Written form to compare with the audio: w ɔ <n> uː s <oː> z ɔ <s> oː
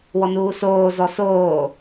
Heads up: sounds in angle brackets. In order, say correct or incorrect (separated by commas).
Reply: correct, correct, correct